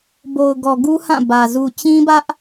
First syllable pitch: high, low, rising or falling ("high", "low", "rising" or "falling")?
low